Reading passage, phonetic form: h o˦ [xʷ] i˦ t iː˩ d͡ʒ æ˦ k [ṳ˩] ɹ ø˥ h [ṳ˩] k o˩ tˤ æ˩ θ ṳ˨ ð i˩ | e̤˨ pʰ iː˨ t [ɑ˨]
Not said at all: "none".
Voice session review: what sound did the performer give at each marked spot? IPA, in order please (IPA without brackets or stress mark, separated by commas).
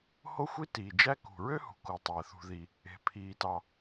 xʷ, ṳ˩, ṳ˩, ɑ˨